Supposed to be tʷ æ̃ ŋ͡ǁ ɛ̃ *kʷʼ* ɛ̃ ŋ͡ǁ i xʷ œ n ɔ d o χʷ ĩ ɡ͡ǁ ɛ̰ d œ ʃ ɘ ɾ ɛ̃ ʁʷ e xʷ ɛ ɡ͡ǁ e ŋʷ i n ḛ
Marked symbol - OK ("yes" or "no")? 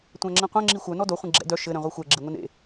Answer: no